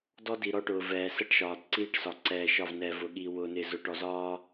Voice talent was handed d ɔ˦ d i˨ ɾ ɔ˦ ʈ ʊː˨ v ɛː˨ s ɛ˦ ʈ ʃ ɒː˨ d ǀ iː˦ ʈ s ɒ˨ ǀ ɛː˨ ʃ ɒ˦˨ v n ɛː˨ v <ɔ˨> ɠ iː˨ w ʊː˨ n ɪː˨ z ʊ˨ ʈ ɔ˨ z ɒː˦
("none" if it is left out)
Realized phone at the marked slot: ʊ˨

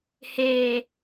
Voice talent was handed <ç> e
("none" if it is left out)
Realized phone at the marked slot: h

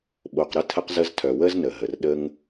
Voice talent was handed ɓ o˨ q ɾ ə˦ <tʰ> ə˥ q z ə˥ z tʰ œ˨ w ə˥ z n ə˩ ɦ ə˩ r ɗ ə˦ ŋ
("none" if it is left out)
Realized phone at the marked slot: tʰ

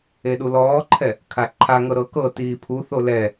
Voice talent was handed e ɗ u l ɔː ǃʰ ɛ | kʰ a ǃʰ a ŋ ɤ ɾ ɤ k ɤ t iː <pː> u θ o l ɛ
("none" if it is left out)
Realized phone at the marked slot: pʰ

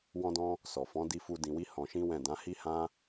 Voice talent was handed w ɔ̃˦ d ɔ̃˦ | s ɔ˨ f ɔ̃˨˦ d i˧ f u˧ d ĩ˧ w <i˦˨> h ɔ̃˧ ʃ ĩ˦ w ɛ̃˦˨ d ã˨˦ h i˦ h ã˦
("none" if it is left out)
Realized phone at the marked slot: i˦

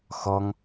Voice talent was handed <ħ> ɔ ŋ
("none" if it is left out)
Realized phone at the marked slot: x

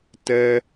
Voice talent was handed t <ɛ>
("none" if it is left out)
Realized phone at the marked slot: ɛ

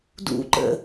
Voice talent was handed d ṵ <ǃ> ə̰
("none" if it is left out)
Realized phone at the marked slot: ǃ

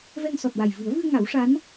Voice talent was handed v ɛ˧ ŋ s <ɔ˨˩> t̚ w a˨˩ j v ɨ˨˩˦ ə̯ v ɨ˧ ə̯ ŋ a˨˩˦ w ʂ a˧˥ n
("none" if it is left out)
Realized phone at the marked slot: ɔ˨˩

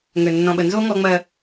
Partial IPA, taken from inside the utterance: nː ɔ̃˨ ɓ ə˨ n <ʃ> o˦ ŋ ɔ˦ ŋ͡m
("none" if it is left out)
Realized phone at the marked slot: z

